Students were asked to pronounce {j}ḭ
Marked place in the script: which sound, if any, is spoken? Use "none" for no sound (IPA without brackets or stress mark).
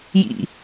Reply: j